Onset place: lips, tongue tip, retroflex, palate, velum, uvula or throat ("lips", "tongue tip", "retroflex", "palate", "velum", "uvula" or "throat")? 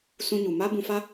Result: tongue tip